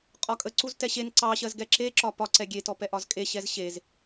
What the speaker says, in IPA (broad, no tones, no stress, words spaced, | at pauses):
qʼɒkʼəǀuz tɛɕen ǀɑ ɕɜzɡɛǁe ǁɒpɒ ǀɛɡʲetɔpɛ ʔɒzkʼe ɕɛzɕez